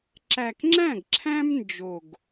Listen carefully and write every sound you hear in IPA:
ǁ æ˨˩ k ŋ͡ǁ æ̃˥˩ ɡ ǁʰ æ̃˥ m n d͡ʒ o˨˩ ɡ

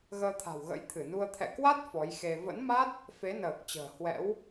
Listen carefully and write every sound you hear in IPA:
ɣ əː˧ t̪ʰ a̤˨˩ w ɣ ə̰˧˥ j t̪ʰ ɨ˧˩ n u˧ ə̯ t̪ʰ ɛ̰˧˨ k w a˦˥ t̚ f ɔ˨˦ j x e˧ v ə̰˧˥ n m a˦˥ t̚ | f e˨˦ n əː˨˩ k̚ t͡ɕ ə̤ː˨˩ h w ɛ̰˧˥ w

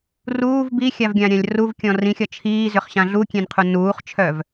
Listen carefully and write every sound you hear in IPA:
r uː v b i xʲ a v ɡʲ ã ɾʲ ã lʲ r u v kʲ ɔ̃ r ĩ xʲ ɒ t͡ʃʰ iː z ʏ χ ɕ ã ɮ u kʲ ẽ n qʰ u n uː χ t͡ʃʰ œ v

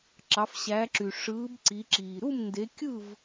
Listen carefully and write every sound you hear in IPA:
ǁ ɑ˨˦ f ɕ æ˨˦ ǁ y˨ ʂ ɯː˨˦ b ǀ i˨˦ ǁ iː˨ ɾ u˥˨ m n d e˨˦ kʲ ɯ˥˨ v

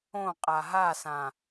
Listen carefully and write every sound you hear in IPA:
õ qʼ a ɦ a s ã

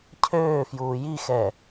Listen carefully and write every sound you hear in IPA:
cʰ øː f j uː j i x ɛ

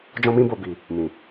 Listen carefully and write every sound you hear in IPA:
d͡ʒ ɔ̃˧ m ĩ˧ b o˨ b i˨ | m ĩ˨

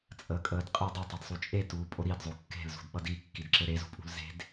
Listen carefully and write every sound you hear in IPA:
t͡sʼ əː kʼ əː d qʼ e dˤ ɘ tˤ e d sˤ u t͡ʃʼ e t uː pʼ o ɾ i d zˤ o kː e̤ l z ṳ d ɓ ʌ d i kː i d ǁ ɘ ɾ e z ṳ pʼ ṳ l z e̤ d

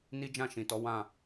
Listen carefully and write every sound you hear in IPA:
n i˦ d͡ʒ ã˦˨ ʃ ĩ˨ t ɔ˨˦ w ã˦˨

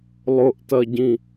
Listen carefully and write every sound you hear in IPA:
lˠ ʊ ʔ t ɐ ɟ ĩ

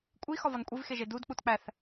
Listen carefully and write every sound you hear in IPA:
kʷʼ i x ɒ v ɒ n kʷʼ i v x e ʒ e d u d k͡p u t k͡p æ θ

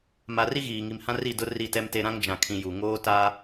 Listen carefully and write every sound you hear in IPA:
m a˨ r i˦ ɣ iː˨ ŋ i˨ m h ã˦ r i˦˨ d ʊ˦ r i˦˨ t ɛ˦ m t e˦ ɾ ã˦ ŋ d͡ʒ ã˨ kʰ ĩ˨ j u˨ ŋ oː˦ t aː˦

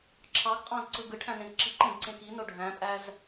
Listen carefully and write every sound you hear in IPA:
ǁʰ ɑ ɡ qʼ ɑ̃ z ǀ ɯ ɡ ɯ ʈʰ æ̃ n ẽ z ǁ i ǃ ẽ ɡ ǀ ẽ k i n o ɖʱ æ̃ pʼ æ z

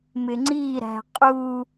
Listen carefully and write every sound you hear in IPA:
m ɪ ŋ͡ǀ i ɾ æ̤ qʼ u

